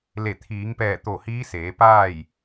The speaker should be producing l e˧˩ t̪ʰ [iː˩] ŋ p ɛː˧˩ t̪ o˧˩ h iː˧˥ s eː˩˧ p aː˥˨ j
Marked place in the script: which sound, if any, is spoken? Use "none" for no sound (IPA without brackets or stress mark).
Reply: iː˩˧